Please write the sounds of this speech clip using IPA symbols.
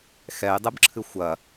x ɛ j dˤ ɨ b ǁʰ ɨ xʷ ɐ

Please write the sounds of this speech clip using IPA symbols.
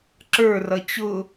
ǁ ə˞ r ʌ t͡ɕ ʊ

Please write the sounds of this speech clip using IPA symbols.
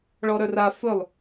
ɭ ɔ ɾ ə˞ r a f ɵ lˠ

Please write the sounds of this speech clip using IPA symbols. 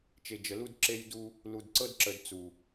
t͡ʃ e˨ d͡ʒ ə˨ l u˦ d ǁ e˦ j d u˦ | l u˨ d ǀ ɤ˦ d ǁ ə˨ d t͡s u˨

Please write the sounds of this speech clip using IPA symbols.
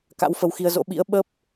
k a̰˧˥ w f ə˧ w x i˧ ə̯ z o̰˧˥ ɓ ḭ˧˥ ə̯ ɓ ə˦˥ p̚

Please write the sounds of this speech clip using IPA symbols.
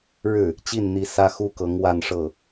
ɻ ɻ̩˥˩ | t͡ɕ i˥˩ n n̪ i˧˥ s ä˥ x u˥ k ɤ˧˥ ŋ w a˥˧ n ʂ ɤ˥˩

